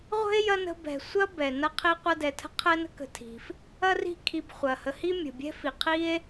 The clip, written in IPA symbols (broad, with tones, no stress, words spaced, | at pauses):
ʁʷə̤˥e̯ jɐ˥nə̤˦ bɛ̤˨ sʷɐ˥bɛ˩ nɐ˦qʰi˦ qʷɐ˦dɛ˨tʰə̤˥ qʰɛ˥nə̤˥kə̤˨ tʰi̤˩f | ɐ˥ri̤˦ kʰi˨bχʷɐ˩hə˨ hi˥mʲə̤˩bʲɛ̤˥fi˩ qʰi˥e̯